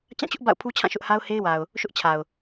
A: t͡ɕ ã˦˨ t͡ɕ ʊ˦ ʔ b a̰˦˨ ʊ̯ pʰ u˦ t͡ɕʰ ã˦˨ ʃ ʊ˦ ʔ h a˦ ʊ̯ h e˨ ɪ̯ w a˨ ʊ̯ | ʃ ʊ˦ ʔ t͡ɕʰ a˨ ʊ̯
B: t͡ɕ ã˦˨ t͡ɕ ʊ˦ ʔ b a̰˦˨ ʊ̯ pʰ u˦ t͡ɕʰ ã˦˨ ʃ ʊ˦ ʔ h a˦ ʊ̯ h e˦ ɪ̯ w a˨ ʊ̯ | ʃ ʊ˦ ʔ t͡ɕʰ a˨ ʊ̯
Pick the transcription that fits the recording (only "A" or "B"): B